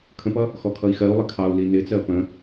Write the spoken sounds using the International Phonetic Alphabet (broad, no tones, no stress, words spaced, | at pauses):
kʰə̃pʌ | xɔkʰʌi̯xɜu̯lˠɪ kʰɑu̯li nɪt͡sɜ pə̃